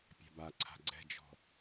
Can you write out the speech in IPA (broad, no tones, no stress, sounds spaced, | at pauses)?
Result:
pʲ a̤ b a ǀʰ a̤ ɡ͡ǀ ɛ̤ d͡ʒ ɔ̤